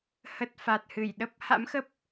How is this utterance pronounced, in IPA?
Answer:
hə˨˩t̚ fa˨˩t̚hɨ˧˩jɗə˦˥p̚ ha̰˧˥mxə˦˥p̚

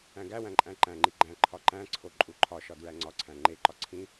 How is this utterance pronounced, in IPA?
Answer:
æ̃ɡæwæ̃ ǃʼæ̃ǃæ̃ŋ͡ǃi ɡ͡ǃæ̃ ǃʰɒǃæ̃ǀʰo ǃʼuǃʰɒʃɒ dɹæŋ͡ǀɒǀʰæ̃ ŋ͡ǃeǃɒ ǀʰĩ

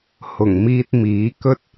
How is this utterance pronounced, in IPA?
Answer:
hʊ˨˩ŋmiː˧t̚ miː˨˥ kɵ˥t̚

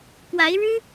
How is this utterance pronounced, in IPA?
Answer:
kwa˧˥ɪ̯ɻɻ̩˥

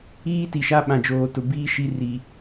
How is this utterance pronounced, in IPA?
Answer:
iː˦ ti˨ʃa˦ɓã˨ d͡ʒoː˨tʊ˨ biː˦ ʃi˦ri˨

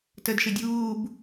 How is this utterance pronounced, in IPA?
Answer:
tədʃɘ dʲuːb

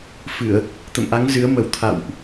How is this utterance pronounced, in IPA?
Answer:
fɨ˧˩˨ə̯ | t̪ə̰˧˨mʔa˨˦ŋ zɨ˨˦ə̯mə˨˩w t̪ʰa̰˧˨wʔ

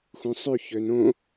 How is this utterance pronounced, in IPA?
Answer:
xũsˤy çønõ

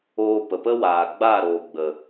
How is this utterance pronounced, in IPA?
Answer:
oː˧pə˨pə˦ waː˨ ɡ͡ba˦˨ɾoː˨ ɡ͡bə˨

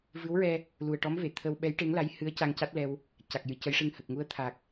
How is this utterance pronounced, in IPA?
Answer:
vɨ˧˥wɹɛ˧ | lu˨˩ə̯ʈɔ˧˥mve˨˩˨ t̪ʰə˧w ɓɛ˧˥jʈe˧˥ŋ la˧˥jhɨ˧˥ə̯ ca˧ŋca˦˥t̚lɛ˧w | ca˨˩k̚jɨ˨˩cə˧˥jʂɨ˧ŋ hə˨˩k̚ŋu˧˥ə̯ t̪ʰa˨˩k̚

